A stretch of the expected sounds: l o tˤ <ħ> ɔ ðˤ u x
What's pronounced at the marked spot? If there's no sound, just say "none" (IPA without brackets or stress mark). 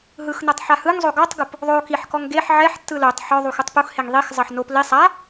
ħ